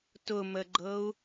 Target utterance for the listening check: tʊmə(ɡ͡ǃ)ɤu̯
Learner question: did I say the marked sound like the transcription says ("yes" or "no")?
yes